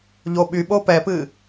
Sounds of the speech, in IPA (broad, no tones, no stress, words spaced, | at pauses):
ʎoɓyɓo pɛpɨ